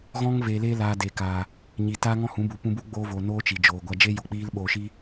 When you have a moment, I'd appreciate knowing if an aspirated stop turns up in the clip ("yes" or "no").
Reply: no